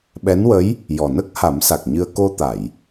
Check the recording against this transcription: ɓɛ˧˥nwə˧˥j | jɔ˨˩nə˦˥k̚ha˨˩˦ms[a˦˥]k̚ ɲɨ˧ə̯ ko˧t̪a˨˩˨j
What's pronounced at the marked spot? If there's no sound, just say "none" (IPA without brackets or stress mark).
a˨˩